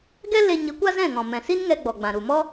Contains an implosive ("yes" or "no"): no